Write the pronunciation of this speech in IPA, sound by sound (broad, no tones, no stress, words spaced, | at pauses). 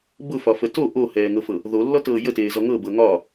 bʊfɒfə to ʔohɛːŋɤfɤ | ðolːɔtɤː jəteːzɔ ŋɤbɤ ŋɒ